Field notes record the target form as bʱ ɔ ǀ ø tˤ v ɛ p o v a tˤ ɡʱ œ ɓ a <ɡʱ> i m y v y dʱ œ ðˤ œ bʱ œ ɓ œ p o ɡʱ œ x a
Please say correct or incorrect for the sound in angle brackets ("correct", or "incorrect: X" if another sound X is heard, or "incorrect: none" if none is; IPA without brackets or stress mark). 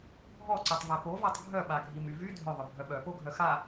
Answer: correct